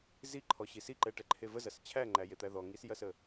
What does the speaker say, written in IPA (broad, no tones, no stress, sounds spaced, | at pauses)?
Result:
z i ǃʰ ɔ ɕ i s i ǃ ɛ ʈ ɛ ǃʰ e v ə z ɐ s t͡ɕʰ æ ŋ͡ǃ æ j e t̪ æ ð ɔ ŋ i s j ɐ s ə